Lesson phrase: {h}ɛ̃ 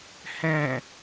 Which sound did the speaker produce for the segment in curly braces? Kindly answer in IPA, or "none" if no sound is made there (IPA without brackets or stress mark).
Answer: h